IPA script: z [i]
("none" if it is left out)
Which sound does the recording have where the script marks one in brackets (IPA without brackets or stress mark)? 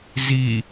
i